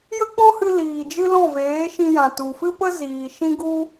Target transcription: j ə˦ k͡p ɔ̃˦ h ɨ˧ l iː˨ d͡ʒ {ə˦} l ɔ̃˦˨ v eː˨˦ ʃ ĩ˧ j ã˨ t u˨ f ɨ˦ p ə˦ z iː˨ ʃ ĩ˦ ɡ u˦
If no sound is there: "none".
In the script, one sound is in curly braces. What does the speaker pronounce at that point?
ɨ˦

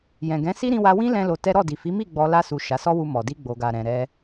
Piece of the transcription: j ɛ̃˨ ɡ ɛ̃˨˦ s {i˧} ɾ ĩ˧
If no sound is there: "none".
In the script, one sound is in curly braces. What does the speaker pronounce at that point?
i˦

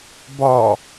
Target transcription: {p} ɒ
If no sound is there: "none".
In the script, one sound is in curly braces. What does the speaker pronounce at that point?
b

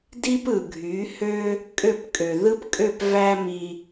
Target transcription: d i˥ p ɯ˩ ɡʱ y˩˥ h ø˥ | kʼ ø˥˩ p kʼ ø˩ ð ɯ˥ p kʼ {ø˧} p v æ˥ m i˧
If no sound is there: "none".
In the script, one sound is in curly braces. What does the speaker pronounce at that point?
ø˥˩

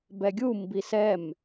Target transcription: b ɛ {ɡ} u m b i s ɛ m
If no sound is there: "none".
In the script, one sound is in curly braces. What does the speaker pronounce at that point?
ɡʲ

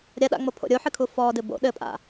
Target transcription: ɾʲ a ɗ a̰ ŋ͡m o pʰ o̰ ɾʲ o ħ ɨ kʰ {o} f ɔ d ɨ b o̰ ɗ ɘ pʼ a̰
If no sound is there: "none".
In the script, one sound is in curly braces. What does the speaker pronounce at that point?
u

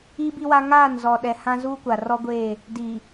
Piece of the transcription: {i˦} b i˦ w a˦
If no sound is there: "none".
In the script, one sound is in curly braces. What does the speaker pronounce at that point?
i˦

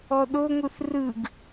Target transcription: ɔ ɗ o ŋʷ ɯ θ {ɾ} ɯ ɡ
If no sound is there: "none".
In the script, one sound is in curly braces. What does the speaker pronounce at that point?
r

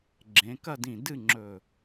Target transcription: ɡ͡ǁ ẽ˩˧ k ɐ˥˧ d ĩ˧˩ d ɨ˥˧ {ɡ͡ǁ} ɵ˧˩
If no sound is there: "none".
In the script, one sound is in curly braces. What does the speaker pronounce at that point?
ŋ͡ǁ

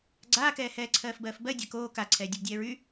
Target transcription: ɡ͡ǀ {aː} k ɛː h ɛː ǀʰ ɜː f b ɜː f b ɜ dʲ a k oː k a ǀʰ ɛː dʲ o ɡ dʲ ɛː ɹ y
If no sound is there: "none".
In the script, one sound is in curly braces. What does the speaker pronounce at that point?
aː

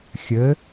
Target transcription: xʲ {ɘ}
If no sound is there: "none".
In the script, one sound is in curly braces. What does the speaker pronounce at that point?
ɘ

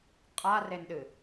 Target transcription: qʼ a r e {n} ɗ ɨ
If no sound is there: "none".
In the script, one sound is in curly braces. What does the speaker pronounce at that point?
n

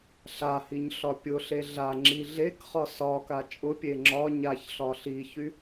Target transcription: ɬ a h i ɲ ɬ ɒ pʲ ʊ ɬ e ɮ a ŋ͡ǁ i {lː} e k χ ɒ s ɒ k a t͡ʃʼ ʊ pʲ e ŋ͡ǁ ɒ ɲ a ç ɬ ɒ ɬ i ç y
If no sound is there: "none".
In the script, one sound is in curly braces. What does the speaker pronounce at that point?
ɮ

